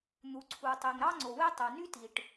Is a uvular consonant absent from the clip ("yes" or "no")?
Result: yes